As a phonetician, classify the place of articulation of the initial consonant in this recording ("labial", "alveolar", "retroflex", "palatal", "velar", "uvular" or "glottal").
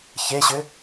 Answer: palatal